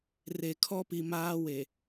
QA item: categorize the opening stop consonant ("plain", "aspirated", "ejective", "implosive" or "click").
aspirated